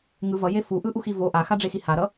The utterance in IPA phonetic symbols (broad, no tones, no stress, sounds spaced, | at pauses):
ŋ ɯ v ʌ j e f u ʔ ɯ ʔ u x i v o ʔ a x a ɖ͡ʐ e x i h a ɾ ʌ